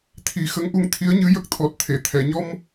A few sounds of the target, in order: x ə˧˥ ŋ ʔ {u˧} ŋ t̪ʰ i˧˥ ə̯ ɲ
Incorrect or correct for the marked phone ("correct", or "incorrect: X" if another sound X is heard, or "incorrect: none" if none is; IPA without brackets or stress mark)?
correct